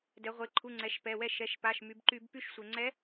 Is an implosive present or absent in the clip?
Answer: absent